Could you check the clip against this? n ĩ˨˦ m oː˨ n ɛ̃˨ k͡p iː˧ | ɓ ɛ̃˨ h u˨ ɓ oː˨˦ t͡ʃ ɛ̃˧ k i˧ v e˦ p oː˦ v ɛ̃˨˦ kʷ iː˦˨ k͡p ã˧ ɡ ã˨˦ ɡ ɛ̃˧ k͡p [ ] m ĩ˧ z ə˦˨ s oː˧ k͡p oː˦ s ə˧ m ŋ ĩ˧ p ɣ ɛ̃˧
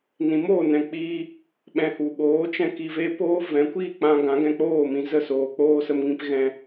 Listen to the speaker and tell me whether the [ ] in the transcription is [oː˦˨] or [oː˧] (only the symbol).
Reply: oː˦˨